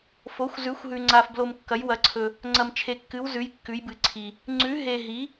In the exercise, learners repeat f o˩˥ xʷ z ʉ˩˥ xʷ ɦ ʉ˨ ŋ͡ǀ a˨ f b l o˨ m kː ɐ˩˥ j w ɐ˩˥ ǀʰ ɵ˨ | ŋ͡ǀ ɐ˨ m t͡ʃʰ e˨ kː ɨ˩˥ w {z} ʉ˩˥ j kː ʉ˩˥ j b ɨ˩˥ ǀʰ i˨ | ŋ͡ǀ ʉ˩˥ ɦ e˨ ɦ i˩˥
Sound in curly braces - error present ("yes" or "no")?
no